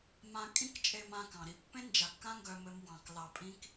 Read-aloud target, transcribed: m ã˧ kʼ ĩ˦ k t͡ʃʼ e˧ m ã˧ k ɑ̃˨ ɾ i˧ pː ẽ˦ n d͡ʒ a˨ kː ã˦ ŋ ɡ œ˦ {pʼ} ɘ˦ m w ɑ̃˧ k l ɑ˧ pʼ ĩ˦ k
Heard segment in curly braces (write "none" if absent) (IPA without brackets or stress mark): m